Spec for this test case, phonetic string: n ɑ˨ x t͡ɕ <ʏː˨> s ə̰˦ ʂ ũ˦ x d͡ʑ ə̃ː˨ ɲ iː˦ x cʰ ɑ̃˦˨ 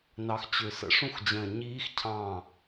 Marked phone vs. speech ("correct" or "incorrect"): correct